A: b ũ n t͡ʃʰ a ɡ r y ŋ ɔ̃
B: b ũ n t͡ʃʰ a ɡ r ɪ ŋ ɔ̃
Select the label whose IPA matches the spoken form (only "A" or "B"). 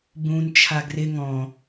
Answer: B